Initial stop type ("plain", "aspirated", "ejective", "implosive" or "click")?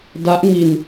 plain